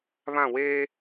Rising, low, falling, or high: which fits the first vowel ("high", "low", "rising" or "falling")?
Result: falling